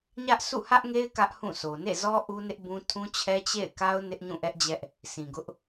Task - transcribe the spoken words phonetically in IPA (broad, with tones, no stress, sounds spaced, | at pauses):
ɲ ä˦ ʔ s ṵ˦˨ h ä˦ ʔ ŋ e˦ ɪ̯ k ä˦ ʔ h ũ˦˨ s o˨ n ḛ˦˨ z ɔ˦ ʔ u˦ n ɪ˦ ʔ b ũ˦ tʰ ũ˦ t͡ɕʰ ɛ˦ t͡ɕ ḛ˦˨ ɪ̯ k a˦ ʊ̯ n ɪ˦ ʔ ɲ ũ˦˨ ʔ ɛ˦ ʔ d͡ʑ ɛ˦ ʔ | s ĩ˨ ɡ ʊ˦ ʔ